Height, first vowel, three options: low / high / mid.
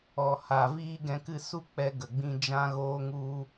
mid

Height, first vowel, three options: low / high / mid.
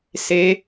mid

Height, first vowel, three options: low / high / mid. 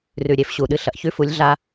high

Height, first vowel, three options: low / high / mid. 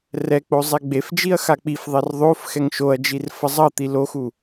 mid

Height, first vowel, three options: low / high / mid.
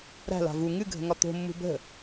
low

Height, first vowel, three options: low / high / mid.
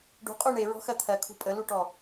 high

